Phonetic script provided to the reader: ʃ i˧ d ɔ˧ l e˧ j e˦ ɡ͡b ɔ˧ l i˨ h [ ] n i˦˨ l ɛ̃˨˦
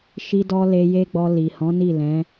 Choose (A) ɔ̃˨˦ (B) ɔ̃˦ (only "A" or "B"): A